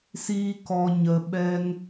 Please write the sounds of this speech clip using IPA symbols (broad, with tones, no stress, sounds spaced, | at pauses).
s iː˧ k ɔ˨ ɲ ə˨ ɓ ɛ˧ ŋ